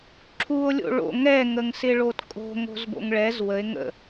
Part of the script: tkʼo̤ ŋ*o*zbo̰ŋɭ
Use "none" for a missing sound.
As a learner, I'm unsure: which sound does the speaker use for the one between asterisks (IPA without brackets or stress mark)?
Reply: o̤